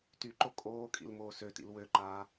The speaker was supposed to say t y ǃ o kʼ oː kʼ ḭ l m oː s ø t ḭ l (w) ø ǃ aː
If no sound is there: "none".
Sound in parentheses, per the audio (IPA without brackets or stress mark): w